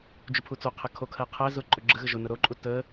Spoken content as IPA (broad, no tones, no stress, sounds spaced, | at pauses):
d͡ʒ u pʰ u t͡s o qʰ ə kʰ o kʰ ɜ qʰ æ z ʊ ǃʼ ʊ ɡ͡ǁ ə ɣ ə ʒ ʊ n ʊ ɾ o ǃʼ u t ə